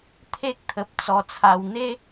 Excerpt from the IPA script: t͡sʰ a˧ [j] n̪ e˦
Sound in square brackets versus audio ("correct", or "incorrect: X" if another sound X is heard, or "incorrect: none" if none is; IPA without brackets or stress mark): incorrect: w